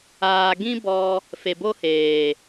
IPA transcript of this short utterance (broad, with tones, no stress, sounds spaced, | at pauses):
aː˨ ɡ ĩ˦ b ɔ˧ | f e˨ b o˦ h eː˨